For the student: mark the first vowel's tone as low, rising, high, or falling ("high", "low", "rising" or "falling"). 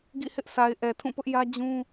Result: falling